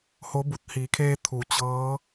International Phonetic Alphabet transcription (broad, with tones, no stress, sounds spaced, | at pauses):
h o˧˥ b u˧˩ t̚ h iː˩˧ kʰ eː˧ t̪ʰ u˩˧ t͡ɕ ɤː˧˥